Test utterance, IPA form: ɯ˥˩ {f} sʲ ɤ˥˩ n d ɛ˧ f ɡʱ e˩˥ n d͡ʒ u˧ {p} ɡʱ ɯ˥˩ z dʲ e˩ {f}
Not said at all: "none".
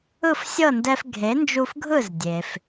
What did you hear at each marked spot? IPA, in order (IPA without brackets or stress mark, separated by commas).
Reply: f, f, f